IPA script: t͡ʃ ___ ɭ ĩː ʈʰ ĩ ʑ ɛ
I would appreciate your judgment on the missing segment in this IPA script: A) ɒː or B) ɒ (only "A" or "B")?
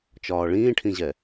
A